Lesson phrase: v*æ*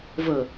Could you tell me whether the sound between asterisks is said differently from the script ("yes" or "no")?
yes